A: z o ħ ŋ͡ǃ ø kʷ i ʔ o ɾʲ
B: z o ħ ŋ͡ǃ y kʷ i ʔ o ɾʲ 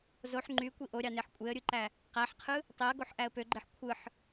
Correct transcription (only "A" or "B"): B